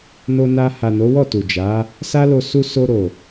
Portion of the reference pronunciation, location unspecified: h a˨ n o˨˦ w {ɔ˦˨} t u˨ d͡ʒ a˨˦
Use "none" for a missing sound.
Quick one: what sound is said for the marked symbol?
ɔ˦˨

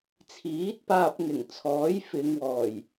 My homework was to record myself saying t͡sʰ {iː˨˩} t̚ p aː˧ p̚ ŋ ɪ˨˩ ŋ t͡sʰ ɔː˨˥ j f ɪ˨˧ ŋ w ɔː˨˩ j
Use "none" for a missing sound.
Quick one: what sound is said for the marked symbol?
iː˨˥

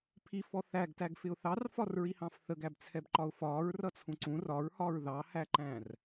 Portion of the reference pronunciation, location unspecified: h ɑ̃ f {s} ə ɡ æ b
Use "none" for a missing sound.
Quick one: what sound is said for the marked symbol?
θ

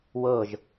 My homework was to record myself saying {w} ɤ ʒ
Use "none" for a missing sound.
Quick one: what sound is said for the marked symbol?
w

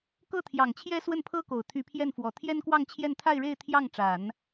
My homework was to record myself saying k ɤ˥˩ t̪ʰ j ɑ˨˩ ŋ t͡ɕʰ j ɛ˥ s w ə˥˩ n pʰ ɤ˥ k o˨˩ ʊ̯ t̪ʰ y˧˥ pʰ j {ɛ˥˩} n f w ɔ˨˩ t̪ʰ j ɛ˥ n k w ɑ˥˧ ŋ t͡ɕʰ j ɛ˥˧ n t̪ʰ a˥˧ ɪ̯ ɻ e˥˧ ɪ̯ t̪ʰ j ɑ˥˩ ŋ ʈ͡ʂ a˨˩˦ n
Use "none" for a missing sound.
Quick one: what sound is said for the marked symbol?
ɛ˥˩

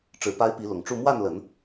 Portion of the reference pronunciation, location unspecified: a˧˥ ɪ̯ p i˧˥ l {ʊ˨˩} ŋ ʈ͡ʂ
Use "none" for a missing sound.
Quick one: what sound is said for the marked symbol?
ʊ˨˩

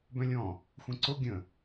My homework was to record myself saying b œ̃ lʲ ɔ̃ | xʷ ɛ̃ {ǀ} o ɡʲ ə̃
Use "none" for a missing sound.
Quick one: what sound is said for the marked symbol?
ǀ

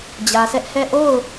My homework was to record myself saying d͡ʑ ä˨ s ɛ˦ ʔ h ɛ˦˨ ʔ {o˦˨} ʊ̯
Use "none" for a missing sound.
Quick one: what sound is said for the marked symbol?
o˦˨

